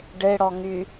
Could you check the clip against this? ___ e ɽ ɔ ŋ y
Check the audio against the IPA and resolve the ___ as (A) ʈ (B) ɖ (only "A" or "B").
B